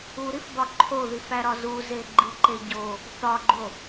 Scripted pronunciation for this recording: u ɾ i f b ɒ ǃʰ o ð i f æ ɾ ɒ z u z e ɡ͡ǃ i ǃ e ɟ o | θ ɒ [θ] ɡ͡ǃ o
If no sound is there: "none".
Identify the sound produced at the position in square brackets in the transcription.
none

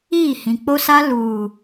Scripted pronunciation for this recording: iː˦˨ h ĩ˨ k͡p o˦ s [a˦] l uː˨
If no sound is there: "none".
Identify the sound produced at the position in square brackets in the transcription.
a˦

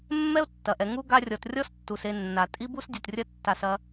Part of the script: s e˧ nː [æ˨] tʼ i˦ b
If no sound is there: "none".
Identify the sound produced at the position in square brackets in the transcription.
a˨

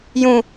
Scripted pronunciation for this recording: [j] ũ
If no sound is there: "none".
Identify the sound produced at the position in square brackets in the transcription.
j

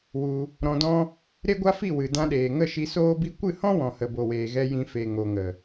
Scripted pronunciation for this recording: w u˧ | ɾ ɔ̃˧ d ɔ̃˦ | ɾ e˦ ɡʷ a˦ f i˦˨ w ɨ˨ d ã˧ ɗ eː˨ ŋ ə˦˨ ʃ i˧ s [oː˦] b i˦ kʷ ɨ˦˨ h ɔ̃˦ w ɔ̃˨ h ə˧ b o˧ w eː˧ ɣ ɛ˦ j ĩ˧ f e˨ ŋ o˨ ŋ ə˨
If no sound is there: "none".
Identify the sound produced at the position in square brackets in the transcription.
oː˦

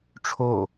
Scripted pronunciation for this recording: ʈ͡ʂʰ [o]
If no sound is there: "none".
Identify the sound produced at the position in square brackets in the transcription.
o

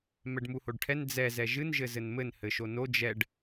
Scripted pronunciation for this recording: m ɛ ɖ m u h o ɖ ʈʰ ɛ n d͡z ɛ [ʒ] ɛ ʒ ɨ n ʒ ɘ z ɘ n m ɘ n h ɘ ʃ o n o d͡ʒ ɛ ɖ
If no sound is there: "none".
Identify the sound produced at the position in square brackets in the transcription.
z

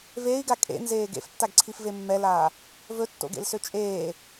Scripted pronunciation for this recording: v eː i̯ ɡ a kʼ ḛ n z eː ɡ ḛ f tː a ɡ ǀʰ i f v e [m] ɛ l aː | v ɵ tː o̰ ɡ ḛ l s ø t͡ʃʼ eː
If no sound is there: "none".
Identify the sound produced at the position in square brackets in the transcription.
mː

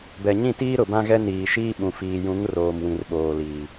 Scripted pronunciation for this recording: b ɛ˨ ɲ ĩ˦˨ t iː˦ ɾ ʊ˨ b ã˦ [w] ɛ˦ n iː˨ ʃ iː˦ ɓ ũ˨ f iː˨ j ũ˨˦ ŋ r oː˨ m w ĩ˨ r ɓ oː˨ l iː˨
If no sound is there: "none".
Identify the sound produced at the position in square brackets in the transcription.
ɣ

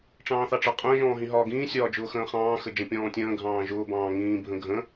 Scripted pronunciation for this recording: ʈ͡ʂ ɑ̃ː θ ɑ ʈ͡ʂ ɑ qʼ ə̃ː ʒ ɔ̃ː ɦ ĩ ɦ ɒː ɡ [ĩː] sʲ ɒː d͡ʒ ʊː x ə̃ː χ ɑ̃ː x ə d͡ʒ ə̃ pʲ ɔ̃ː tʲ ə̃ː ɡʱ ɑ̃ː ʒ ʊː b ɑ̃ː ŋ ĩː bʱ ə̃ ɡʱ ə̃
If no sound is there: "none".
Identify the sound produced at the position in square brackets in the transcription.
ĩː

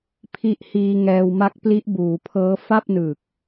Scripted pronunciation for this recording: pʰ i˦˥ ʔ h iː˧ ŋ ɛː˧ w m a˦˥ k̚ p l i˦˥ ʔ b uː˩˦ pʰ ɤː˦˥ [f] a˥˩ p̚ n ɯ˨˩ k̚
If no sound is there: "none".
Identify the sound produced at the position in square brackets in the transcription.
f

